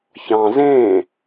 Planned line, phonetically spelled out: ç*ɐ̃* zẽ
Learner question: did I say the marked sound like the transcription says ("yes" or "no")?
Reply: no